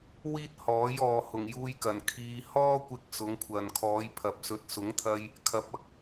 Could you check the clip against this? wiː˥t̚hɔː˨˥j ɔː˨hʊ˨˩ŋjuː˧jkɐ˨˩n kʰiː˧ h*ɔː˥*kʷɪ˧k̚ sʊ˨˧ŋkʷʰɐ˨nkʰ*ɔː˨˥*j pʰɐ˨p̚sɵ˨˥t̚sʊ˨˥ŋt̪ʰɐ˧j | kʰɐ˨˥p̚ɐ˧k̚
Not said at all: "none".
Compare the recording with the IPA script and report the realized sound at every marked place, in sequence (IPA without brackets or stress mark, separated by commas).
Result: ɔː˥, ɔː˨˧